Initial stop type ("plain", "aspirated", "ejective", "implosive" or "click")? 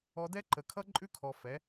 plain